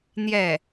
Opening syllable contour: falling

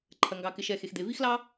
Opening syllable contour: low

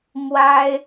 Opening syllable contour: high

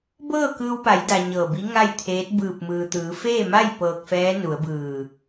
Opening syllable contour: falling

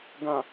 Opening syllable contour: low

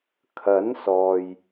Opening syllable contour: rising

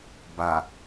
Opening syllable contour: low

